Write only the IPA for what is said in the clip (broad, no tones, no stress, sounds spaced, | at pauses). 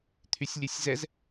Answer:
t̪ʰ y sʲ lʲ e sʲ z ɛ z